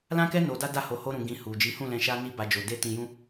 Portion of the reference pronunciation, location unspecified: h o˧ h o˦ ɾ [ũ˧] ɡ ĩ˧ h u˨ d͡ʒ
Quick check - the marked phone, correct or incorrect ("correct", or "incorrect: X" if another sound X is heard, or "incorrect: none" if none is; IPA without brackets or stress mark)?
correct